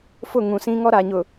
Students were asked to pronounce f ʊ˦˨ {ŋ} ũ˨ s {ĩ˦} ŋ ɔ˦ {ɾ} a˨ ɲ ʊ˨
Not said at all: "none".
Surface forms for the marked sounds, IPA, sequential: ŋ, ĩ˦, ɾ

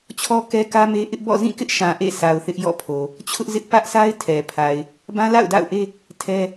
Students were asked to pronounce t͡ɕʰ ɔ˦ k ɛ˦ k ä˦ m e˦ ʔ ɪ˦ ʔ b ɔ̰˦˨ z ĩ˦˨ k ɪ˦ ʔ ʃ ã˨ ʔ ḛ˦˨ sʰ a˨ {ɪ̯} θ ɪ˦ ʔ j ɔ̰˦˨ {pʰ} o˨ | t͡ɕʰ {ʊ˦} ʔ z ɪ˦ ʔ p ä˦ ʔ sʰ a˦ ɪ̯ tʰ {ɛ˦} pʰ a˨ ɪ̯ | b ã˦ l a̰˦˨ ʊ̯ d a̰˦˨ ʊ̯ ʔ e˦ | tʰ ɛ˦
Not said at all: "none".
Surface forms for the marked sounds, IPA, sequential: ʊ̯, pʰ, ʊ˦, ɛ˨

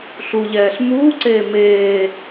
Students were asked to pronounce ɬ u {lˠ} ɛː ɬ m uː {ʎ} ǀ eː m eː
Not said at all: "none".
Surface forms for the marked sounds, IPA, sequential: ʎ, none

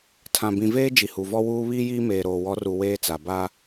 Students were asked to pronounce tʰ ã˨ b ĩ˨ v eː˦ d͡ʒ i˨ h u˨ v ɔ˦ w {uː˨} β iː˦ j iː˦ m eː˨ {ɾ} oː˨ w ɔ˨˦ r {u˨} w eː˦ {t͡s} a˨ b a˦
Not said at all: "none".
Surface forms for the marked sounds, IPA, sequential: uː˦, ɾ, u˨, t͡s

